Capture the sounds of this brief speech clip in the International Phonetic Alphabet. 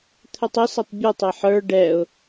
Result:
t̪ʰ ɵ tˤ ʊ s ɛ tˤ bʲ u tˤ ɛ ħ ə˞ ɖ ɛ ʊ̯

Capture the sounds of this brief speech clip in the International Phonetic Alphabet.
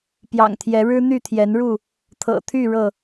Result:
p j ɑ̰˨˩ ŋ t̪ʰ j ɛ˨˦ ɻ ɻ̩˦ n̪ y˥˨ t̪ʰ j ɛ˨˦ n ɻ u˥˨ | t̪ʰ ɤ̰˨˩ t̪ʰ y˥˨ ɻ ɤ˥˨

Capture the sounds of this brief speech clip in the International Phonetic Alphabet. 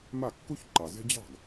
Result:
m a˥˩ kː u˥ ç ǃ ɑ˨ z e̤˥ d͡ʑ ɑ̤˥˩ ɡ

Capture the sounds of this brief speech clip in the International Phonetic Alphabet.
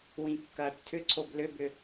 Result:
w ĩ kː ɐː ʈ tʰ ʏ ǀʰ o b l ʏ b ʏ

